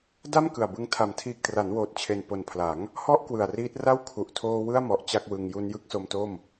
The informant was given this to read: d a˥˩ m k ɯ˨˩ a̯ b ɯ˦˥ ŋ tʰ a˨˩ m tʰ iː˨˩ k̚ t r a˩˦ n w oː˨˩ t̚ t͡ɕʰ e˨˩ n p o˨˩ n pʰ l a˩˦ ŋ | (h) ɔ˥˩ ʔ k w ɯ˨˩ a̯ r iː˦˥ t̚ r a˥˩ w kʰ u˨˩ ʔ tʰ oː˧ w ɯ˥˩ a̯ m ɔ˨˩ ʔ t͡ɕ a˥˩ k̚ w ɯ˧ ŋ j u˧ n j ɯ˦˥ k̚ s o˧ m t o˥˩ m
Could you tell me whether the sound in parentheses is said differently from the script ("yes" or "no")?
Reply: no